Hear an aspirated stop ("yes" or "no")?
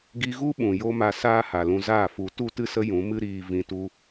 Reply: no